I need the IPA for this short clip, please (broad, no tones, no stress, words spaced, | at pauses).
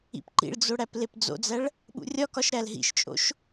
ḭpǃḭɭd͡zo ɽæplepd͡zo̰d͡zæɭ | ɓṵrʲɒkɒʃ ɾælɦḭʃt͡ʃʼo̰ʃ